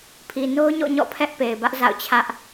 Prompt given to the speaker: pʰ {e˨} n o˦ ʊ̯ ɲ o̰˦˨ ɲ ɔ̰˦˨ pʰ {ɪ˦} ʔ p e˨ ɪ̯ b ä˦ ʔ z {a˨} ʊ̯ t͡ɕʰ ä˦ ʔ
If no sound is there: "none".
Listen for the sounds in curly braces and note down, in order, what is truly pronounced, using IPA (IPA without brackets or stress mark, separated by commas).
i˨, ɛ˦, a̰˦˨